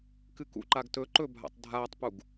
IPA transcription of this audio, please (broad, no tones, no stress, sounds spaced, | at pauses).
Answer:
k ɨ k ṵ ǃ a ɡ t ɵ ǃ ɵ bʱ a̰ tˤ dʱ aː tˤ p u ɡ